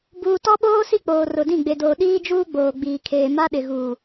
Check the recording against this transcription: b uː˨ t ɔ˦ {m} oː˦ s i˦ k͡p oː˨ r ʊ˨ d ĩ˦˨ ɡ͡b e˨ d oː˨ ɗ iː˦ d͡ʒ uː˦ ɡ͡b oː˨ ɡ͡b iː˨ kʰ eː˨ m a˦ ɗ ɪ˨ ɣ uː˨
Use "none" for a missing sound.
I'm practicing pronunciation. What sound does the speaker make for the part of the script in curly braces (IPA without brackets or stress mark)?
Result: ɓ